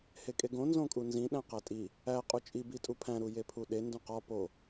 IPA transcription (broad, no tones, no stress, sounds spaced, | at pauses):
h e kʼ e ɡ õ n z õ kʼ u n z ĩ ɗ æ̃ q æ tʼ i | æ qʼ u t͡ʃʼ i b i tʼ u pʰ æ̃ ɾ u j e pʰ u ɗ e n d ũ q ɒ p o